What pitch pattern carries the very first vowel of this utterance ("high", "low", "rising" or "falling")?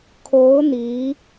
rising